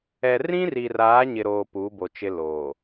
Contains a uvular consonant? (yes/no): no